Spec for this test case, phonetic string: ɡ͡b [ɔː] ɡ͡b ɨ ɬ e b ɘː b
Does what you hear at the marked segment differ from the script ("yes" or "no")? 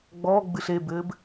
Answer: no